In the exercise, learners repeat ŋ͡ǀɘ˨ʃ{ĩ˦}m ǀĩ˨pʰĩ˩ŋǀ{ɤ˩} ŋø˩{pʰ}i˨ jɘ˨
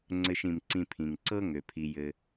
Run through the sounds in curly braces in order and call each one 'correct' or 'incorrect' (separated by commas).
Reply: incorrect, incorrect, correct